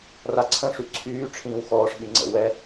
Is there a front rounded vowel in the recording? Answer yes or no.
yes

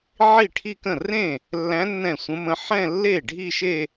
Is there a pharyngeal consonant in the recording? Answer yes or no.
yes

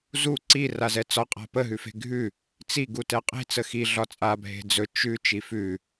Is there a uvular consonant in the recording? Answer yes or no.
yes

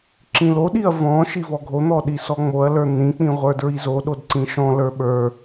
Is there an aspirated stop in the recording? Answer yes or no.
no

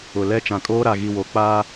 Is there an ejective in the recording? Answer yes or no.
yes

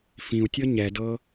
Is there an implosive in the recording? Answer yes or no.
no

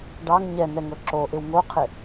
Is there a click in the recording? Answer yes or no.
yes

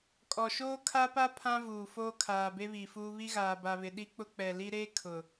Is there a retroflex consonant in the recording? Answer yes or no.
no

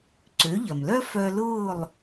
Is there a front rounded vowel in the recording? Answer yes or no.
yes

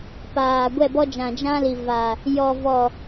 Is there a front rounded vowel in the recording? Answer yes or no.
no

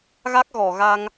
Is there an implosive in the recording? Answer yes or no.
no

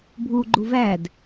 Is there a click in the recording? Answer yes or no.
yes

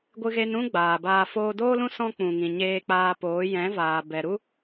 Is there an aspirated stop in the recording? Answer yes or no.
no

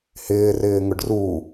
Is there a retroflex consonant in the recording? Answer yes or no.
yes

